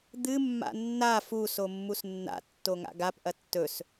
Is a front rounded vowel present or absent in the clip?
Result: absent